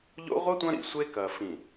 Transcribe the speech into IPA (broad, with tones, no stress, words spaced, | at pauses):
ʎo̰˦ ʁʷɐ˦ tʷɐ̃˦ɾḭ˨sʷe˦ kɐ˨fĩ˨